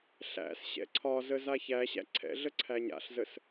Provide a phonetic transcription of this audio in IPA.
ɬæ̰sɕɛ̰ ǀʰɒzə zaçæɕæ̰ ǀʰɛ̰ɮə ǀʰæɲa̰ɬzəs

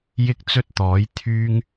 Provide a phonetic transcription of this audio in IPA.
jɪ˥k̚t͡sɵ˥t̚t̪ɔː˨˥j t̪ʰyː˥ŋ

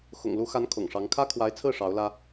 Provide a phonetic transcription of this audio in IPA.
xʊ̰˨˩ŋlu˧˥xa˧˥n kʰʊ̰˨˩ŋʂɑ˧˥ŋ kʰä˥kʰwa˧˥ɪ̯t͡sʰɹ̩˥˩ ʂɑ˧˥ʊ̯lä˥

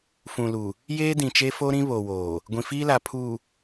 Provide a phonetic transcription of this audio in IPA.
fũ˨lu˨ | jeː˦dĩ˨t͡ʃe˦fo˦ ɾĩ˦ βo˨woː˨ | ɡʷĩ˨fiː˦la˨ pʰuː˨

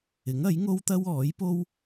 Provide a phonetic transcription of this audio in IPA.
ɪ˨˥ŋɐ˨˥jŋo˥wt̪ɐ˥w ɔː˨˥jpo˥w

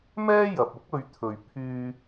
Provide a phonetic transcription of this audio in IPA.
mɛː˥jɐ˨p̚ʊ˥k̚ ɵ˧ɥt̪ʰɵ˨ɥ pʰyː˧

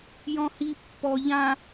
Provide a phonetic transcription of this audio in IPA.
jɔ̃hi pːɔ ʎã

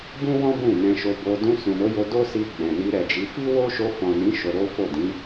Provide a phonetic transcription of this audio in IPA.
bũ˦wɔ̃˦ bũ˦˨nɛ̃˧ʃo˧bo˧ dũ˧sũ˨no˨˦jo˧ do˦si˧ ɡ͡bɛ̃˨ni˧ ɾɛ˨d͡ʒi˨˦ fi˦wo˦ ʃo˧fɔ̃˨nĩ˨˦ ʃo˧ɾo˦ fo˦˨ dĩ˨˦

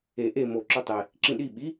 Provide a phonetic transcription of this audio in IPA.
e ʔe mo ǁɵtˤe | ǁĩɗi ɓi

